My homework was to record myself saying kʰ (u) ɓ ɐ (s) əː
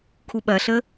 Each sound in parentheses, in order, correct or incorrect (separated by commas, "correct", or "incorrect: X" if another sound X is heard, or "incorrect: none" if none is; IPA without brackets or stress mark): correct, incorrect: ɬ